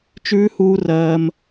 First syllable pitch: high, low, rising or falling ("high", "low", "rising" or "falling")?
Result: high